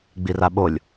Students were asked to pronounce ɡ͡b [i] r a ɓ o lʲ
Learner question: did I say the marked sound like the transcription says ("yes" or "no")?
yes